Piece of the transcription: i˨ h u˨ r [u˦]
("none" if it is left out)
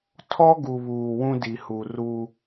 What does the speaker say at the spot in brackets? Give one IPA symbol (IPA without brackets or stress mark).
u˦